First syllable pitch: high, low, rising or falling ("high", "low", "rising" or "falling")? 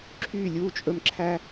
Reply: falling